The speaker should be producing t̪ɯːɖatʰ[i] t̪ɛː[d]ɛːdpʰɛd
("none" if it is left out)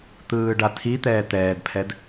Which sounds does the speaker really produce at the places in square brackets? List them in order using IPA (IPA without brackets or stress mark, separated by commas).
i, t̪